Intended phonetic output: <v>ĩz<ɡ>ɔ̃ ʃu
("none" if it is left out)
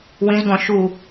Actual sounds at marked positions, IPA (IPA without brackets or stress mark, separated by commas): w, ɡ